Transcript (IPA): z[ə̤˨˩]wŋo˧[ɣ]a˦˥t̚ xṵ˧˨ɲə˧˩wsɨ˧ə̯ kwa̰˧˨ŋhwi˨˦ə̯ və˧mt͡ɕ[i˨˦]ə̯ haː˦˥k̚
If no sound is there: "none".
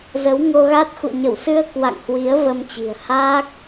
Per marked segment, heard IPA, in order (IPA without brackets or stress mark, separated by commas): ə˨˦, ɣ, i̤˨˩